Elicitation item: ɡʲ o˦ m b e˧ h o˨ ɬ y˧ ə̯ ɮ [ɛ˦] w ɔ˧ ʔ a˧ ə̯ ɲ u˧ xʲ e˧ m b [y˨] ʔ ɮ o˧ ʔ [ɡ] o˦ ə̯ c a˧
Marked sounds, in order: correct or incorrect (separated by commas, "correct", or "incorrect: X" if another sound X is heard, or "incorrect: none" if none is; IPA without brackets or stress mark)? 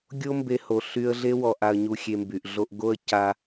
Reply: incorrect: e˦, correct, correct